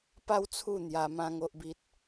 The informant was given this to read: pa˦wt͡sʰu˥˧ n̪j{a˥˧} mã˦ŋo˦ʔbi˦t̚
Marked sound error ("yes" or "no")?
yes